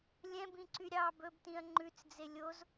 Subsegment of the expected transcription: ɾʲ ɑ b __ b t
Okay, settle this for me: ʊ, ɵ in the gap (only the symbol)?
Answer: ɵ